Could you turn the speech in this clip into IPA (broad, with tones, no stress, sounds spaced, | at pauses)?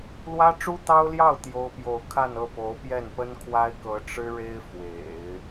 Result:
l w ä˥ ʈ͡ʂ u˥ t̪ ɑ˥ ʊ̯ l j ɑ˥˩ ʊ̯ t̪ j o˥ ʊ̯ p j o˥˧ ʊ̯ kʰ a˥˧ n ɤ˥˩ p o˧˥ ʊ̯ p j ɛ˥˩ n p ə˥ n kʰ w a˥ ɪ̯ k ɤ˧˥ ʈ͡ʂ ɻ̩˥ ɻ e˥ ɪ̯ f w ḛ˨˩˦ ɪ̯